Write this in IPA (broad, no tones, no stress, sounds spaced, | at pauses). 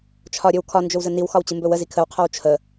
t͡ʃʰ ɒ ɾʲ ɵ w kʰ ɒ n d͡ʒ ɵ w z ə n i w x ɒ w t͡ɕ ɨ m b ɵ w ə z i kʰ ə w qʰ ɒ w t͡ʃʰ ə